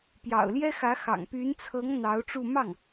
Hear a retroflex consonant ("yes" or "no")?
yes